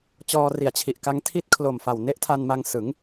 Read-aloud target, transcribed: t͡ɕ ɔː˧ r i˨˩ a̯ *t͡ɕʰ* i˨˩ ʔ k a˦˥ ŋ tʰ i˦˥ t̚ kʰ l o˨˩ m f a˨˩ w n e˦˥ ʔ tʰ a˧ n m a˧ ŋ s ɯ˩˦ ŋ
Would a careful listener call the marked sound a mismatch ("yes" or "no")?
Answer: no